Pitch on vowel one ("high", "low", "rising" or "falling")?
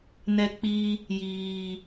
low